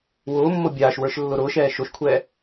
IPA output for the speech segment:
wʊːmːo bʲaːʃwə˞ʃ lːʊɾʊːʃɛː ʃoʃkʷʰɛː

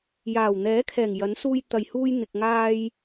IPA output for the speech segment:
jaː˨˩wn̪ɛː˨˥kʰɛː˨˩ŋ jɐ˨˥nsuː˧j t̪ɐ˨jhuː˧j n̪ɪ˨k̚ŋaː˧j

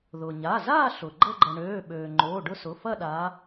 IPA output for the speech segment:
ðʊ˩ɲa˩˧˩ zaː˥˧ ɬʊ˩ ɡ͡ǃə˥˧ɡ͡ǃə˩ ɳøː˩˧˩ɓøː˩ ŋ͡ǃoː˩˧˩ɖʊ˥˧sʊ˩˧˩ fɐ˥˧ɗa˨˦

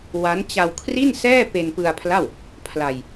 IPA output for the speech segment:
wa˦˥nt͡ɕa˧wkʰri˥˩nsɛː˥˩ pe˧npɯ˧a̯pʰla˥˩w | pʰla˧j

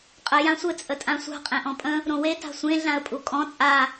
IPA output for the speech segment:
qʼə jãsʷɘ t͡sʼətʼãsʷa̤ qʼẽʔɔ̃pʼə̃ | ɾõwe ta̤sʷẽ ɮãə̯pʼukʼɔ̃ t͡sʼa

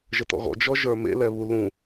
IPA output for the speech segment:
ʒətɔ̰ɣɔ̰ d͡ʒɔʒə˞mḛ lɛβu lũ

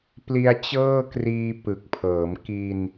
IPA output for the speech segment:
pli˧a̯t͡ɕɤː˥˩kriː˧ pɯ˨˩k̚pʰɤː˩˦m ki˧n

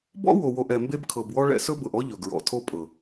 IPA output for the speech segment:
bɔ̰˦wo˨wo˨ʔ ɛ˨mbe˦b kʰɤ˨bwɔ˦ɭɛ̰˦ sɵ˦bɤ˨ʔɔ˦ ʎɵ˨ɡɹɔ̰˨tʰo˦pʼɤ˨

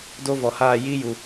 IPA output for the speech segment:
do˦vɔ˨haː˦˨ ji˦ju˨

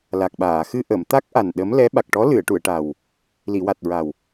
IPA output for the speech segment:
la˨˩k̚ɓaː˨˩˨ xɨ˧ʔə˨˩˨mt̪a˦˥k̚ ʔa˨˩n ɗə˧˥m lɛ˧˥ ɓa˨˩k̚ʈɔ˧˥ lɨ˨˩˨ə̯ʈu˨˩˨ə̯ʈa˨˩w | li˨˩˨wa˨˩t̚ɹa˨˩w

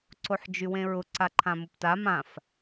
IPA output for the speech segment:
ǀoħd͡ʒywẽɹʊ ǀaǃʰãmʊpta mãf

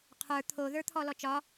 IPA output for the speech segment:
qʰə˞ t̪ʰoðə˞t̪ʰɔ lɔt͡ʃɒ

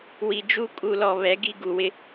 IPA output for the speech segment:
wi˨d͡ʒu˦ kʼu˨lɔ˨ βɛ˨˦ɡi˦ ɡu˨wɪ˦

